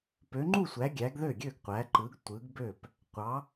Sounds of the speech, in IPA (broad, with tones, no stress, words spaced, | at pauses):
pø˨˦ŋ͡ǃu˥˨sʷæ˨˦ ɡʲæ˨˦ɡðø˥˨ɡʲø˥˨ɡ qʷæ˨˦ǃɯ˨˦ɡ tʷɯ˨˦ɡbø˥˨p | qʷɑ˨˦